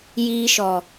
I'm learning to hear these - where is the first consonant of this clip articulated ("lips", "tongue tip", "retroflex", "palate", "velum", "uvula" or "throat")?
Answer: palate